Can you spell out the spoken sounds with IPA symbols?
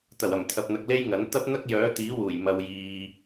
t̪ ɐ˨˩ w ɐ˨˩ m t̪ʰ ɐ˨ p̚ n̪ ɐ˨ k̚ l e˥ j ŋ ɐ˨˥ n t̪ ɐ˥ p̚ n̪ ɐ˥ k̚ j œː˨˥ t̪ iː˨˥ w uː˨˩ j m ɐ˨ w j iː˨

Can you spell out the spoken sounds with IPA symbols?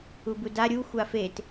u b u d a ɾʲ u xʷ a f e t

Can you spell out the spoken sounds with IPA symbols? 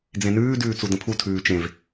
d͡z ẽ n ʉː d ʉː t͡s u d ə̃ pʰ u tʰ ʉː t͡ʃ ẽ v

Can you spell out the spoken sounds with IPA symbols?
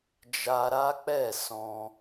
d͡ʒ a˧ ɾ a˦ k͡p ɛ˦˨ s ɔ̃˧

